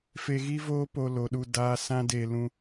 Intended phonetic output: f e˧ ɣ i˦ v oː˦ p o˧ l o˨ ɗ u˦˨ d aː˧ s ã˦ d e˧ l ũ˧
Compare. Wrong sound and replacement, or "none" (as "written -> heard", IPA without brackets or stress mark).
none